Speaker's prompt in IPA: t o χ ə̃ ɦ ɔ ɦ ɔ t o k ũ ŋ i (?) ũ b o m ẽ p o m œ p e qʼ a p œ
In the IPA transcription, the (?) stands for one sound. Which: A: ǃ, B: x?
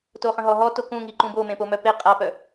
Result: A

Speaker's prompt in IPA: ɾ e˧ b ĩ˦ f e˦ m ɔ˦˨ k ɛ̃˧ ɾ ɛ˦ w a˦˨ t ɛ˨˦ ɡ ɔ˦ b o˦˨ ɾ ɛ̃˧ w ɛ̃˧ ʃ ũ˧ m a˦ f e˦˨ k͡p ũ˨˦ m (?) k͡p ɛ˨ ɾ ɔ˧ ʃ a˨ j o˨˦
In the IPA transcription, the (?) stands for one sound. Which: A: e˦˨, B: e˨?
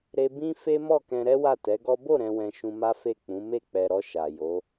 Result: A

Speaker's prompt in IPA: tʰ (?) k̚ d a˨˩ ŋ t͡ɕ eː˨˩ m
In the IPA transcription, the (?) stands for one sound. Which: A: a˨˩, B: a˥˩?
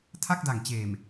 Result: B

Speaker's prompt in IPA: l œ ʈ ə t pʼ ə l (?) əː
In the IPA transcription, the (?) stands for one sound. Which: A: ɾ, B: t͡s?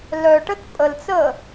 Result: B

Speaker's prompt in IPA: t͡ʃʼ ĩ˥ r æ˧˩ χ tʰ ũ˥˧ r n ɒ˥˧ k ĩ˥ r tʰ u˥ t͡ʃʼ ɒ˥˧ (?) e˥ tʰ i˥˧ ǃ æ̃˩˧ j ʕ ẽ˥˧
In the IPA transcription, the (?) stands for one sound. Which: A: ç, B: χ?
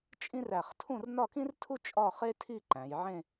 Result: B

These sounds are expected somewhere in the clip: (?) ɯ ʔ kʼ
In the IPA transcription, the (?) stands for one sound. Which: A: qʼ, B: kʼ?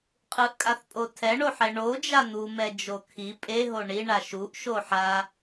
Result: A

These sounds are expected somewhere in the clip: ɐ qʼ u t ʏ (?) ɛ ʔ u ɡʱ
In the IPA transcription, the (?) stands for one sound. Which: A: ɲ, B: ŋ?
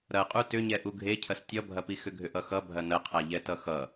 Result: A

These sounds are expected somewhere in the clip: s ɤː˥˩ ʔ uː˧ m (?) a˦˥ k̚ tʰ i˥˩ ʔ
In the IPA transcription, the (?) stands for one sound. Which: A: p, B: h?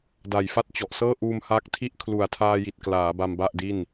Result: B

